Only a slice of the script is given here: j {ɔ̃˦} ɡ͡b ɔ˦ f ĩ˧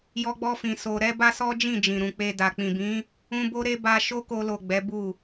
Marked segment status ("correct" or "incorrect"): incorrect